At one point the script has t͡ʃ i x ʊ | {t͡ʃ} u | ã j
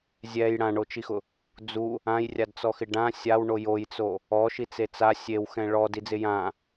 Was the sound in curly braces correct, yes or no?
no